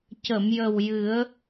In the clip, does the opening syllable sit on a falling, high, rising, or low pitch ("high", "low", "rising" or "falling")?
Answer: low